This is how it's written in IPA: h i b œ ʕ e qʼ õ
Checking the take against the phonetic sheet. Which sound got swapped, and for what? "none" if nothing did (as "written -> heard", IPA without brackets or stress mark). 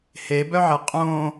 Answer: i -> e